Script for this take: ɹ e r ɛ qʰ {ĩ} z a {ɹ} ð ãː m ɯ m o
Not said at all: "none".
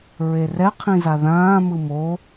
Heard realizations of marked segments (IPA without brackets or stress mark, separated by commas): ĩ, none